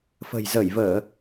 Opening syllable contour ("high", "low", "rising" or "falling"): low